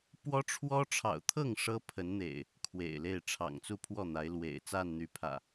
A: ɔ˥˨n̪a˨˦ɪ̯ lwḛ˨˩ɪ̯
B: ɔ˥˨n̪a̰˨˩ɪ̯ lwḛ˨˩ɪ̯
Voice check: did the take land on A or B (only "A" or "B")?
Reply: A